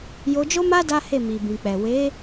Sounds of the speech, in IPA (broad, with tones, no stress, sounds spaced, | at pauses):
j o˧ d͡ʒ o˦ m a˦ d a˦ h e˦˨ m i˨ b ĩ˨ k͡p ɛ˨ w e˨˦